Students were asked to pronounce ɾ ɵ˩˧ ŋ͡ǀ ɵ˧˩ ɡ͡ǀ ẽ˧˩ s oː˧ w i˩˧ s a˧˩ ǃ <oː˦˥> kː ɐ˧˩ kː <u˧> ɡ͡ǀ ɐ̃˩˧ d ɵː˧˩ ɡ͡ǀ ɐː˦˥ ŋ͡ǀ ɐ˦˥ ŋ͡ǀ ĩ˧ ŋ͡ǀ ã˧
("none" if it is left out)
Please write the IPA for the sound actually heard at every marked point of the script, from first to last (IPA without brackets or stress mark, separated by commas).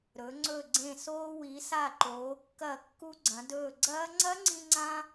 oː˩˧, u˧